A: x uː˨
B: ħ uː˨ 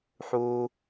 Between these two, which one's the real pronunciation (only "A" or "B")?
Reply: B